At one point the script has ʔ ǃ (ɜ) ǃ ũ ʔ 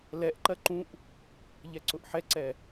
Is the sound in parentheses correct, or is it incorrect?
correct